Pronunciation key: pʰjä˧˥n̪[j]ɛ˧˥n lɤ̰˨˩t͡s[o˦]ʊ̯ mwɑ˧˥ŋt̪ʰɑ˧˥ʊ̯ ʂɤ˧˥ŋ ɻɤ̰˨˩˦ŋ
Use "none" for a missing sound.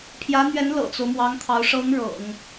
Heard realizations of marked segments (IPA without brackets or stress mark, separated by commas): ɥ, o˦